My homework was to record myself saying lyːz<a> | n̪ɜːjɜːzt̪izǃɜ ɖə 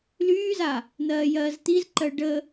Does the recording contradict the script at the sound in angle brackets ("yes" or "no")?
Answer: no